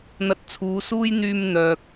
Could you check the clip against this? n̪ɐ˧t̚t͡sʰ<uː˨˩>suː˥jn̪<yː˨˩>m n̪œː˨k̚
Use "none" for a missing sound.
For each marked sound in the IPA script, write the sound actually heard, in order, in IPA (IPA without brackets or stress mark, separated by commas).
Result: uː˨˧, yː˧